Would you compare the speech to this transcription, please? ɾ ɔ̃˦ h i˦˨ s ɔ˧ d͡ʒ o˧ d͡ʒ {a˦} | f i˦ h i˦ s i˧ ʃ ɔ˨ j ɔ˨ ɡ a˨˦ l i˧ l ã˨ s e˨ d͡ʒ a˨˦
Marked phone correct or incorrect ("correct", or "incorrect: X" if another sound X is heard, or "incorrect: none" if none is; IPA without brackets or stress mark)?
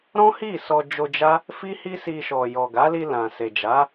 correct